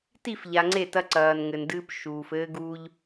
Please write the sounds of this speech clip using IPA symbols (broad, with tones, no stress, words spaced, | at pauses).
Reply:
ti˦˨fʎa˨ŋ͡ǀe˦˨ tɐ˦ǀɐː˨nŋɘ˨ndɨː˦p ʃuː˨fɘː˦ɡuː˦ʎ